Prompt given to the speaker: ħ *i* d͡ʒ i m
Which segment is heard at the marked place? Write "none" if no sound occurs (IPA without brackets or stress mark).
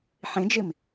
ĩ